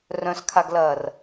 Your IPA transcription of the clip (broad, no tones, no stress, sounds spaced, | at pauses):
r œ̃ s kʰ a ɡ l ɐː r